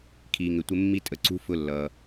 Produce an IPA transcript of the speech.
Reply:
kʰ iː˩ ŋ ɪ˩ tʷ ɪ˨ mː i˨ tʼ ə˩ ǀ ṳ˨ f ʊ˨ lː ʌ˩

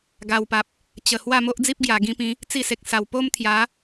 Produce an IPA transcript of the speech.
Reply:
ɡ a˨˩ w p a˨ p̚ | t͡ɕ ə˨˩ h w a˥˧ m o˦ ʔ d͡z i˦ p̚ ɡ j a˨˩ ɡ ĩ˧ p ĩ˨˦ | t͡s i˥˧ s e˨ k̚ s a˨˩ w p o˦ m t̪ʰ j a˨˦

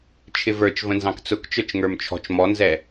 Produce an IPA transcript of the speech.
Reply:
t͡ʃʰ ɪ v ə˞ t͡ʃ v ə̃ n z ɑ̃ k t͡s ʊ k t͡ʃ ə˞ t͡ʃ ŋ ə˞ m t͡ʃʰ ɔ̤ t͡ʃ m ɔ n z ɛ

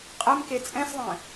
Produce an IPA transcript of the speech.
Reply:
qʼ ɛ m k e t͡sʼ ɛ̃ s ðˤ ɛ̃

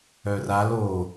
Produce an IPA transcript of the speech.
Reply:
œ r a l o

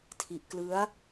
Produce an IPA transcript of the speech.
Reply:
tʰ i˦˥ ʔ k l ɯ˦˥ a̯

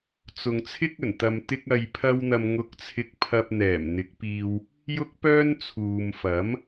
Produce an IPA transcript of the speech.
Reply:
t͡s ʊ˨ ŋ t͡sʰ ɪ˥ k̚ ɵ˨˩ n t̪ ɐ˨ m t̪ ɪ˧ k̚ ɐ˨ j pʰ ɐ˧ w n̪ ɐ˨ m ŋ ʊ˨˥ k̚ t͡sʰ ɪ˨ k̚ pʰ ɐ˨ p̚ n̪ ɛː˨˩ m n̪ ɪ˨˥ k̚ p iː˧ w | j ʊ˥ k̚ p œː˥ n t͡sʰ uː˨ m f ɐ˨˥ m

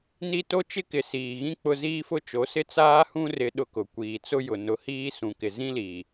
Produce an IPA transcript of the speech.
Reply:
n i˦ t o˦ t͡ʃ ɪ˦ k ɪ˨ s iː˨ ɣ ĩ˦ k͡p ʊ˦ z iː˦ f ʊ˦ t͡ʃ o˨˦ s ɪ˦ t͡s aː˦ h ũ˦ r ɪ˦ ɗ ʊ˦ k ʊ˨ kʷ iː˨ t͡s ʊ˦ j ʊ˨ n ʊ˨˦ h iː˦ s ũ˨ k ɪ˨ z ĩ˦ l iː˨

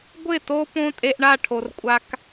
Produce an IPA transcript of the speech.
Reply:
ɡʷ ɪ˦˨ t o˧ p õ˧ tʼ e˧ ʔ ɳ a˦˨ ʈʰ o˨ r kʷʼ a˦ k

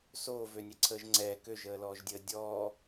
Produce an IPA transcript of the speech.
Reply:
s oː v ø nʲ ɛ ǀʰ əː ʒ ŋ͡ǀ ɛː k ø ʒ əː l ɔː ʒ dʲ əː dʲ ɔː

